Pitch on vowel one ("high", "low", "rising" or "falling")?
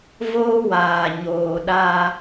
high